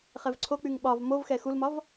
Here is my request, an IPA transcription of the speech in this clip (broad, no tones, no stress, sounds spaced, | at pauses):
χ ɛ v ǀʰ o k͡p y ŋ ɓ ɒ v m o v x ɛ x u l m ɒ v